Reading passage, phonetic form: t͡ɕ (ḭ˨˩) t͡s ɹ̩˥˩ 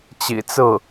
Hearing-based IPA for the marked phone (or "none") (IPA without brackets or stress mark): ḭ˨˩